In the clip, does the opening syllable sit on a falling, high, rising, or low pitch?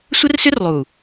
high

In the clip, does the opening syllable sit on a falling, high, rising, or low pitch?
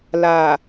low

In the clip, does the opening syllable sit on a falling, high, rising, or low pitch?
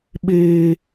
high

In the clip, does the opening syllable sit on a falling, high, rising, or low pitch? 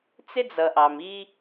high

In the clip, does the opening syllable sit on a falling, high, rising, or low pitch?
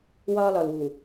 high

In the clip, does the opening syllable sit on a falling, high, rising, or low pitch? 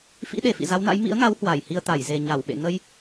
rising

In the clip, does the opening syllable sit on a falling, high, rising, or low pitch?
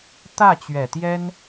falling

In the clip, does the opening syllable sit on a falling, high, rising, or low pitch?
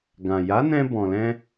low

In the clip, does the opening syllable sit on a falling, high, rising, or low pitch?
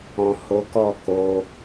low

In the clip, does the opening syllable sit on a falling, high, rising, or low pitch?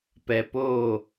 low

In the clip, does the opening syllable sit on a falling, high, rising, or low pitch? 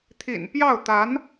low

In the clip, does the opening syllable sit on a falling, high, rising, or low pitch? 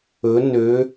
rising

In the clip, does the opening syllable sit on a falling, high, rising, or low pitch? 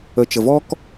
low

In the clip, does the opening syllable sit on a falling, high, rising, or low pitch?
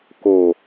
low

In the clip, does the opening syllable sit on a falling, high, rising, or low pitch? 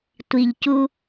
low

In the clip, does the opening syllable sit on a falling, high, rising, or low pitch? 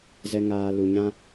low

